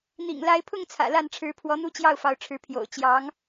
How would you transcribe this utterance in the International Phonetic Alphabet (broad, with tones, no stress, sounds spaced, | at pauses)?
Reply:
n̪ ḭ˨˩ ŋ l a˧˥ ɪ̯ pʰ ʊ˥˩ ŋ t͡sʰ ä̰˨˩ l a˥˩ n ʈ͡ʂʰ ɻ̩˧˥ pʰ w ɔ˧˥ n̪ u˥ t͡ɕ j ɑ˥˩ ʊ̯ f ɑ˧˥ ʊ̯ ʈ͡ʂʰ ɻ̩˧˥ pʰ j o̰˨˩ ʊ̯ t͡ɕ j ɑ˧˥ ŋ